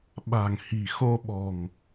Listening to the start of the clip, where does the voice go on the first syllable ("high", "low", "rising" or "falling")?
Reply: low